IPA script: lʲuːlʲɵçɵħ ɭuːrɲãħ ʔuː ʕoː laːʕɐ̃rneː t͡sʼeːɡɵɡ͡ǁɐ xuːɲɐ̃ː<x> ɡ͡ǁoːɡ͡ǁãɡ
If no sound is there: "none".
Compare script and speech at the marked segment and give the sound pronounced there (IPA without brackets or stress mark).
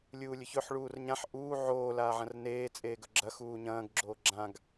ɡ